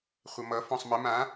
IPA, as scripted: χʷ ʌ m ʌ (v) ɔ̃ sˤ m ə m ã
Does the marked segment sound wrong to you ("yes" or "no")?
yes